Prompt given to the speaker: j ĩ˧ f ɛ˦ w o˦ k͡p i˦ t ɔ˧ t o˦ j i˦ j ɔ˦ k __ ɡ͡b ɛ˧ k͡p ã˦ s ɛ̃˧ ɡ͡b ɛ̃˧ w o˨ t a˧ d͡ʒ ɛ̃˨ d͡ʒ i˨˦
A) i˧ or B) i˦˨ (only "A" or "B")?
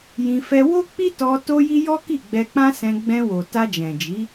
B